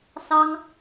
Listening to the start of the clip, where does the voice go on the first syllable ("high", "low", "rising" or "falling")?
high